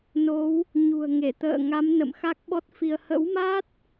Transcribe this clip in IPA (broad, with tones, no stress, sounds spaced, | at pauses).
n o˨˦ w | ɲ ṳ˨˩ ə̯ ŋ e˧˩ t̪ ə̰ː˧˨ ŋ a˨˦ m n ə̰˧˨ m x a˦˥ k̚ ɓ ɔ˦˥ t̚ f i˧ ə̯ h ə̰˧˥ w m a˦˥ t̚